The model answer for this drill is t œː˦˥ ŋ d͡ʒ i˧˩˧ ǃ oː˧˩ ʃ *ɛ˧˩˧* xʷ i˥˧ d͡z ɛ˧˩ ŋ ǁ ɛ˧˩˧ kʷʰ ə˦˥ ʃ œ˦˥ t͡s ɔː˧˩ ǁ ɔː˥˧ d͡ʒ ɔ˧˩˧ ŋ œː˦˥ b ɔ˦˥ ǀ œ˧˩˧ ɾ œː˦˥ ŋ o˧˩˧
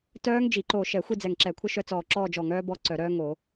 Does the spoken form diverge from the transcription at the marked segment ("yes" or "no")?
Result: no